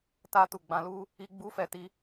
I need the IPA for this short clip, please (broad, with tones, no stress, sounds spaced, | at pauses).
t a˦ t u˦˨ ɡ͡b ã˧ l u˦ | i˦ ɡ͡b u˦ f ɛ˦˨ t i˧